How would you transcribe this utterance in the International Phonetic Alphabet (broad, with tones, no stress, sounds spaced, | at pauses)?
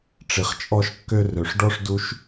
ʈ͡ʂ i˨ χ t͡ʃʼ ɔ˧ ʃ kː ø˧ r ø˨ ʂ ɖ ɔ˦ ʂ d u˧ ʃ